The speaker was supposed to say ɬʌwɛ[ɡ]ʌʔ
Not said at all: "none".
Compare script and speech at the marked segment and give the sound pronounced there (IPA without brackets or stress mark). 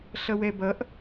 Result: b